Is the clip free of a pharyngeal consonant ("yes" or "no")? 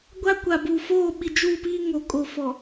yes